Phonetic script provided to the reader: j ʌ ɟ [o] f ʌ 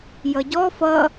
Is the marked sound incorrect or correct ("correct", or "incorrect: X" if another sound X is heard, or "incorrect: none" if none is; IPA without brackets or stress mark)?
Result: incorrect: ɔ